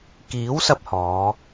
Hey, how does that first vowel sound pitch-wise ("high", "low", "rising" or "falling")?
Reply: rising